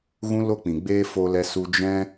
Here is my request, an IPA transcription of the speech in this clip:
ɣ ũ˦ l o˦ k͡p ĩ˨ ɡ͡b eː˦ f o˧ l ɛ˧ s u˧ d͡ʒ ɛ̃˧

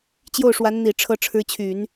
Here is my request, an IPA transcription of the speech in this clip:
t͡ɕ j o˥˩ ʊ̯ ʂ w a˧˥ n n̪ i˨˩ ʈ͡ʂʰ ɤ˧˥ ʈ͡ʂʰ ɻ̩˧˥ t͡ɕʰ y˨˩˦ n

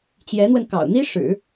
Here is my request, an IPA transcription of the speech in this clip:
t͡ɕ j ɛ˧˥ n̪ w ə˧ n k ɑ̰˨˩ ʊ̯ n̪ i˥ ʂ ɻ̩˨˩˦

